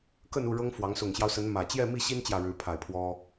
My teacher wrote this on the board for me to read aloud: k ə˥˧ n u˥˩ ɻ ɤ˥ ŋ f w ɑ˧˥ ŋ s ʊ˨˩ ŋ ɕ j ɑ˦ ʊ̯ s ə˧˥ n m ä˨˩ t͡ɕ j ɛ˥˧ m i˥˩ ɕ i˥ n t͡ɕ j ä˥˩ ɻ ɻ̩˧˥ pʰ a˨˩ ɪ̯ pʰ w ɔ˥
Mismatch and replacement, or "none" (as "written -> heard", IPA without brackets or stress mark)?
none